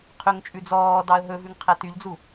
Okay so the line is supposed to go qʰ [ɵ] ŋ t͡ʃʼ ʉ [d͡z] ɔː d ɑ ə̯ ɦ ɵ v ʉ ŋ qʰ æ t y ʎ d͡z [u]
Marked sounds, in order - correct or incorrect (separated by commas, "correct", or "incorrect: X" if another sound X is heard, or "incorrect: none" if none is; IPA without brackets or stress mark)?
correct, correct, correct